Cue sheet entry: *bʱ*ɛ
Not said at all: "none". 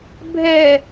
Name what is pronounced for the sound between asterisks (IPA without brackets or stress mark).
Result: bʱ